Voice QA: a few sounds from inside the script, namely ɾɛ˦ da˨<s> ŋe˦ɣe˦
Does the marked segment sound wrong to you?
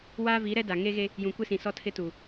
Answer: yes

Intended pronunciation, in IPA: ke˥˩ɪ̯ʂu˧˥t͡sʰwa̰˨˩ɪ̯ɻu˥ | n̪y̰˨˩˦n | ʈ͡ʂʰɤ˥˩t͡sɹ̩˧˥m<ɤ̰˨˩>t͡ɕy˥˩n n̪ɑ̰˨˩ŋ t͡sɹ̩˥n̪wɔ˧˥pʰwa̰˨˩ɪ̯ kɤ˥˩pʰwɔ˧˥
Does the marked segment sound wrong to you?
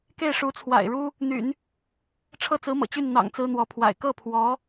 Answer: no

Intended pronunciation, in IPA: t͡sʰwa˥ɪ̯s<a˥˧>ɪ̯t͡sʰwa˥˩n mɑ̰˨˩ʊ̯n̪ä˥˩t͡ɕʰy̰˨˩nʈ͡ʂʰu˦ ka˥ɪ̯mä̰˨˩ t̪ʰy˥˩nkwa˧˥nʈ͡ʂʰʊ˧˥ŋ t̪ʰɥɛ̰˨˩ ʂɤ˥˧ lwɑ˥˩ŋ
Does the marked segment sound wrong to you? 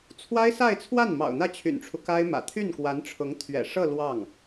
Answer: no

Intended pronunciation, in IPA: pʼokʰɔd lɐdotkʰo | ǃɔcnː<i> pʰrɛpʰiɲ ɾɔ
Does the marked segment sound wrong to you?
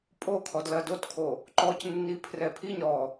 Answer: no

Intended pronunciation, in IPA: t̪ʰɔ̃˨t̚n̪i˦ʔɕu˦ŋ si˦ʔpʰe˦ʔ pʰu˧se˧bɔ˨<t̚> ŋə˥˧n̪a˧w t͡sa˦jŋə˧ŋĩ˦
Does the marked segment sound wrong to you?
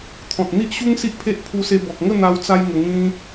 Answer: yes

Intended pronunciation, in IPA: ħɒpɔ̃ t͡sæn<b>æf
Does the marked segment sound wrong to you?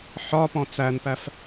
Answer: yes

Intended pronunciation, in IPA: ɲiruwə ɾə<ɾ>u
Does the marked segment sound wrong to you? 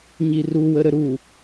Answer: no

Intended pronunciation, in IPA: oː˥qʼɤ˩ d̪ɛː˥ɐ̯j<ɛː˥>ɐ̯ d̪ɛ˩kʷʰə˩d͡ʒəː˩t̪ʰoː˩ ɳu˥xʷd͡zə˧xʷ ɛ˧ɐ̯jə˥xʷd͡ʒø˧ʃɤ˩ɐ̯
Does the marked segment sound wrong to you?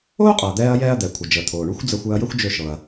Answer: no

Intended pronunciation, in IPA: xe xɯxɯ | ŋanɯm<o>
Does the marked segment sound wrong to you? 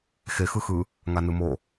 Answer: no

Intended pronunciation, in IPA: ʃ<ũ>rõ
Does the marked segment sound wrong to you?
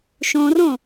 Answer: yes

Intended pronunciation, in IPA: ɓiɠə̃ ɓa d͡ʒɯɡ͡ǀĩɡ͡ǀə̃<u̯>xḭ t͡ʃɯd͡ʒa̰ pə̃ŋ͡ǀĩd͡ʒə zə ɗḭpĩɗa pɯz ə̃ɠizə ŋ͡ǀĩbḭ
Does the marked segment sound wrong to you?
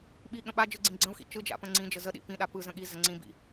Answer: no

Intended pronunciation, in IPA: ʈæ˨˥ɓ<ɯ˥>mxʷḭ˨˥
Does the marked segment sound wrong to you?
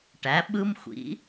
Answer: no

